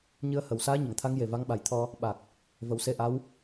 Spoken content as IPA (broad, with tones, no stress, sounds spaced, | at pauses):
ɲ ɨ˧ ə̯ h ə˨˩ w s aː˧˥ ɲ ə˨˩˨ ŋ t̪ʰ a˧˥ ŋ j e˨˩ v a˧˥ ŋ ɓ a˨˩ j t̪ʰ ɔ˧ | ɓ a˨˩ k̚ | v ə˨˩˦ w s e˧ ʔ a˧˥ w